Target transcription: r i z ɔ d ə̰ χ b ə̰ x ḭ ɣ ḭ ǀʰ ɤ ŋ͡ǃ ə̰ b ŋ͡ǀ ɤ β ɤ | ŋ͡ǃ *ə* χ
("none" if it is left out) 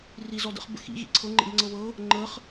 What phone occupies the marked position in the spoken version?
ə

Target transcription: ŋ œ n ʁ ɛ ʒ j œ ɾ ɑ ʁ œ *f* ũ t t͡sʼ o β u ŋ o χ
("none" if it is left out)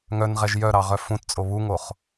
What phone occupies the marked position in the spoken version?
f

